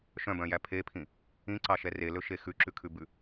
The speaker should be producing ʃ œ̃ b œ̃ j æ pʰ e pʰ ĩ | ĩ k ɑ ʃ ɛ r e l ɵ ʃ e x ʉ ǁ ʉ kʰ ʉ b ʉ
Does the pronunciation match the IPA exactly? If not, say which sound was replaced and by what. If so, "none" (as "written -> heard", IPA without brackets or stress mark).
k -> ǀ